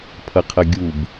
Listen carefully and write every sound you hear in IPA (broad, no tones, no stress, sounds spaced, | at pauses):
pʰ ʌ qʰ ʌ ɡʲ u b